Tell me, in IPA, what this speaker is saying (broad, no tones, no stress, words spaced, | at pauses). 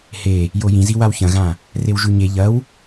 he | jojĩzi wawçɐ̃ɣã | rewʒʉɲe ʎɐw